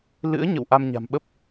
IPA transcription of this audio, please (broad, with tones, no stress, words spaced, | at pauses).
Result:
lɨ̰˧˥ə̯ɲə̰˧˨w ʔa˧mɲa̤˨˩mɓə˦˥p̚